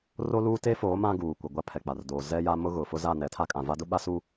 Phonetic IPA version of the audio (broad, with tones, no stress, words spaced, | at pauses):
ro˦luː˦ te˦foː˨˦ mã˦ɡuː˨kʷɪ˨ ɡʷa˦pʰɛ˨k͡pa˨rdoː˨ zɛ˦ja˦mʊ˦ɣʊ˨ fʊ˦za˦˨ nɛ˨˦tʰa˦kʼã˨ va˦dʊ˦ɓa˦su˦